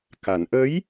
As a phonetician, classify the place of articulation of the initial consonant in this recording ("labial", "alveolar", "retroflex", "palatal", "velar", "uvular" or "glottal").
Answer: velar